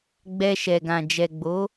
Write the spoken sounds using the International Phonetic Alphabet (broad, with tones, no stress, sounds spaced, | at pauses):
ɡ͡b ɛ˧ ʃ ɛ˨ ɡ ã˨ d͡ʒ ɛ˨ ɡ͡b o˨˦